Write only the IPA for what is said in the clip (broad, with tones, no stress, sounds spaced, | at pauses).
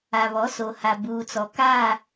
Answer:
a˨ β ɔ˨˦ s o˨ h a˨ b uː˨ t͡s ɔ˨ k aː˦˨